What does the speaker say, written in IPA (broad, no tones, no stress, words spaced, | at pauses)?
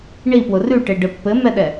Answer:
ɳipwʊ rʉʈeɖɘ pːɘmɛɗɛ